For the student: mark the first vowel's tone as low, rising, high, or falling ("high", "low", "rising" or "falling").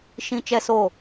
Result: high